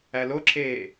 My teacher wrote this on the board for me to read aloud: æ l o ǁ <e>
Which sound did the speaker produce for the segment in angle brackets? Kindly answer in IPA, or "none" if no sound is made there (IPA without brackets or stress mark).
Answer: eː